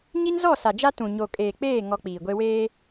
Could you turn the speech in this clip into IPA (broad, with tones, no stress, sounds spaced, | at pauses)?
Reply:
ɲ i˦ n z ɔ˦˨ s a˨ d͡ʒ a˦ t ũ˨ ɲ o˨ kʼ eː˨ k͡p eː˦˨ ŋ ɔ˦ k͡p iː˨ ɡʷ e˦ w eː˦